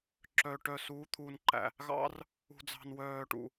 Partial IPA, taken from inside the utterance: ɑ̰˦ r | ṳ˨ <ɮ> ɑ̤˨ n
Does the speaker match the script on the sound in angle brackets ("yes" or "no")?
no